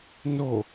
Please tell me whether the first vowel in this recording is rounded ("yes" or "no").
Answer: yes